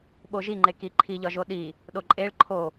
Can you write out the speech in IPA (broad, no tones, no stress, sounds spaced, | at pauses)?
ɓ o ʒ i ŋ͡ǃ e k i ǃʰ i ʎ ɒ ʒ o ɗ i | ɗ o ǃʼ e ɭ ǃʰ o